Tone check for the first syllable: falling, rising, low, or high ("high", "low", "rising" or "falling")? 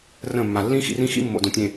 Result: falling